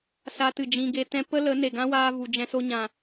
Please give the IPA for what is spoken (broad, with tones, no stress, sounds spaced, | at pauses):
s aː˧ t ɨ˨ d͡ʒ ĩ˧ ɡ e˧ t ɛ̃˦ p ə˦ l ə˨˦ n e˨ ɡ ã˦ w aː˧ v u˨ d͡ʒ ɛ̃˧ s o˧ ɲ ã˨